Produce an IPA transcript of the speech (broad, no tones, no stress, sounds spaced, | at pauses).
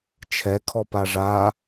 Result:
t͡ʃʰ ɛ kʰ ɔ p a ʐ a